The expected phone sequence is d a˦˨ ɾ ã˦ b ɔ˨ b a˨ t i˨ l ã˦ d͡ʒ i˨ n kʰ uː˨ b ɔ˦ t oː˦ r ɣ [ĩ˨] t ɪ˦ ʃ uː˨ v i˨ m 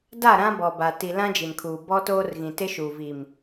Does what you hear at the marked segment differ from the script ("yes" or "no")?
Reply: no